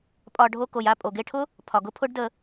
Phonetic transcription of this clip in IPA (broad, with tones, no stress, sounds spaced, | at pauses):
pʼ ɒ˧ ɖʱ o˧ k o˨ j a˦˨ pʼ o˨ ɡ e˧ ʈʰ ʊ˦ | pʰ ɒ˨ ɡ ʊ˧ pʰ ʊ˦ ɖ d ə˧